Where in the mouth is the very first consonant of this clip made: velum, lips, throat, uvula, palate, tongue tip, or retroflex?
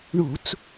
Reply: retroflex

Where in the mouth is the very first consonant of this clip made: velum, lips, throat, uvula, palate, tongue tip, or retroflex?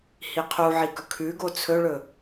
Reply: throat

